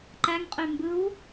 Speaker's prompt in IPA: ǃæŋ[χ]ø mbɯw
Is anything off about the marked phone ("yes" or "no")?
yes